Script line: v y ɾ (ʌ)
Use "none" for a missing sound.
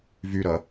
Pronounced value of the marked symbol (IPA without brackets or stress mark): ʌ